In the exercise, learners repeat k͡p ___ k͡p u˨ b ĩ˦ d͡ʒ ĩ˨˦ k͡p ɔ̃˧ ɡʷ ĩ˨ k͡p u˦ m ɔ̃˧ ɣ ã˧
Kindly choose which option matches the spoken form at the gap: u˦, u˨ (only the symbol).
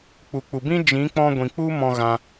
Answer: u˨